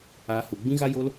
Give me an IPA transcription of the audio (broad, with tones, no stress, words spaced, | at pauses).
aː˧ hu˨ɡ͡bĩ˦ɣa˦ jo˦l